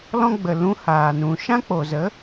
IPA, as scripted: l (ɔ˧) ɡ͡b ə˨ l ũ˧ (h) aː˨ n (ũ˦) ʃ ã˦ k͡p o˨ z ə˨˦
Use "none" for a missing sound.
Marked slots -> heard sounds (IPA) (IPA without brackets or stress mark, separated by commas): ɔ̃˧, h, ũ˨